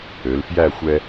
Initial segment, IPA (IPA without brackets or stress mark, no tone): ø